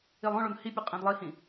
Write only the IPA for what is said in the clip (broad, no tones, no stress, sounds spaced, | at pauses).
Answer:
i lˠ õ ɭ o n h i pʲ ə qʼ ĩ d lˠ i h ĩ